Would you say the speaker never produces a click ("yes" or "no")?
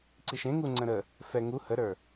no